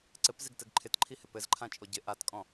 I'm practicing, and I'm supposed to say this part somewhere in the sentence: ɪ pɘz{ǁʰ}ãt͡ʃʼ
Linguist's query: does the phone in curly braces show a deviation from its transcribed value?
yes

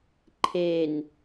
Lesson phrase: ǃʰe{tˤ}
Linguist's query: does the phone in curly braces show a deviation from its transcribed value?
yes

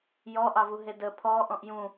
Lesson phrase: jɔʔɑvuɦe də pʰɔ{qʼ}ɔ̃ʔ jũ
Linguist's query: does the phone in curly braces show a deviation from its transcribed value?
yes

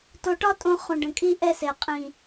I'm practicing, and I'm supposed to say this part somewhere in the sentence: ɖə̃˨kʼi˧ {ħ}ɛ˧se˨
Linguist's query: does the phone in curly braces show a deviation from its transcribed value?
yes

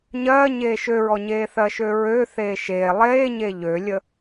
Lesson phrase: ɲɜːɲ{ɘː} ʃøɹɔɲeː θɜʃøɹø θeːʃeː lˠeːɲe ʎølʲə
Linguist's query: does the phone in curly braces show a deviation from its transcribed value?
yes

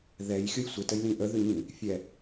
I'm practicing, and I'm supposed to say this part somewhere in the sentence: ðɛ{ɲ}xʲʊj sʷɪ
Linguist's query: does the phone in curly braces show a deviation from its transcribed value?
yes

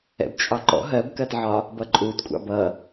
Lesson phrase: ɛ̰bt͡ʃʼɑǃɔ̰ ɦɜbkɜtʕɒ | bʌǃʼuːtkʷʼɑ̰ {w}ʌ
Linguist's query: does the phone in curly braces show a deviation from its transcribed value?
yes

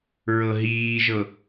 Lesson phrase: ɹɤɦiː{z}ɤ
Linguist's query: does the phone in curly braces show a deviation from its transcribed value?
yes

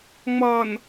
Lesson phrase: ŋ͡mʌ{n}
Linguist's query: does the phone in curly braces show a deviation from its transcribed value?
no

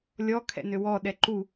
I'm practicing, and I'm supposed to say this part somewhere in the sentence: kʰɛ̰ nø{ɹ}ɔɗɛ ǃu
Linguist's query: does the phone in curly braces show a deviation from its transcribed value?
yes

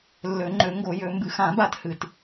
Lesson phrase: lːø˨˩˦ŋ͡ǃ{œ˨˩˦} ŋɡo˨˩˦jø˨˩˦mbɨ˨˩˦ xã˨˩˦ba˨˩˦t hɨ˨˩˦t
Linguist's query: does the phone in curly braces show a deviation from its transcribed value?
yes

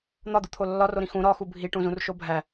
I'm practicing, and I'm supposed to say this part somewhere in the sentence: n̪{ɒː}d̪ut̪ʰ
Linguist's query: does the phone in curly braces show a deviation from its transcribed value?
yes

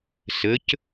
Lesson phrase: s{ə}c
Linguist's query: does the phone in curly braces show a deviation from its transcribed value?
no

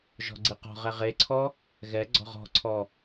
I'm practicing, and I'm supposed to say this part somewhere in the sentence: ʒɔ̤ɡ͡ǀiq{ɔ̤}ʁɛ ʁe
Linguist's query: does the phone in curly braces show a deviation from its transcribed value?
no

